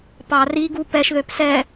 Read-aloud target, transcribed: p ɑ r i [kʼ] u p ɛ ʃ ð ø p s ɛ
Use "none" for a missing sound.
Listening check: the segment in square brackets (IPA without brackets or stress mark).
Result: ɡ